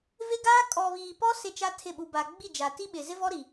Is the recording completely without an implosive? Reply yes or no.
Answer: no